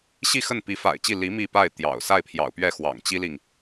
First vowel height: high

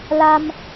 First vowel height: low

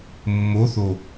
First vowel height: mid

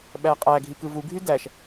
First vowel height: low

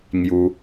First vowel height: high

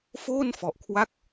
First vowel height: mid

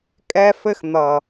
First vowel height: mid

